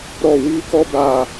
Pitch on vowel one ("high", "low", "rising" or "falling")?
falling